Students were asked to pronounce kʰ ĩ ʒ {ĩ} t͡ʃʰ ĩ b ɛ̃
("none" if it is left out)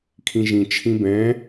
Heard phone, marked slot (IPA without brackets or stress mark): ĩ